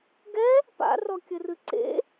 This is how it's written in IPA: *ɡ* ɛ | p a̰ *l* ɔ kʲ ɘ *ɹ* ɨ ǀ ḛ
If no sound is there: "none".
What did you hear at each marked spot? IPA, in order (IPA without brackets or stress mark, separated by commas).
ɡ, r, r